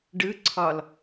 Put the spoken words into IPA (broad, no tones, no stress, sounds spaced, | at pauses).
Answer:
ɖ ɯ ǀʰ ɒ l